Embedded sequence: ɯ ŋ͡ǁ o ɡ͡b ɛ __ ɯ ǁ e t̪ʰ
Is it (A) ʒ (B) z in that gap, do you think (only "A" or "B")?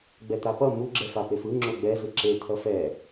B